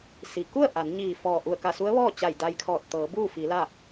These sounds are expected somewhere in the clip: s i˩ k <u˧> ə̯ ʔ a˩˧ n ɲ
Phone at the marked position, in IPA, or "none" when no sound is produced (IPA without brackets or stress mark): u˥˨